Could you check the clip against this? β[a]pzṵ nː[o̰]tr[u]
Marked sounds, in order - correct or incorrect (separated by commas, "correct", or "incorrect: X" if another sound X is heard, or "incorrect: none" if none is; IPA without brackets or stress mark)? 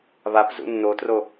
correct, incorrect: o, incorrect: o